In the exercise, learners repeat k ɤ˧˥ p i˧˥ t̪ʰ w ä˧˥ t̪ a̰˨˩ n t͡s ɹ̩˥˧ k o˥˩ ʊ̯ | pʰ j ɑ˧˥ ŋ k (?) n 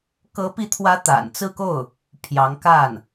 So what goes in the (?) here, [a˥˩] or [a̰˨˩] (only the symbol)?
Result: a˥˩